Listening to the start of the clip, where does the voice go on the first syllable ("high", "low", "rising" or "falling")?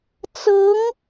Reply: rising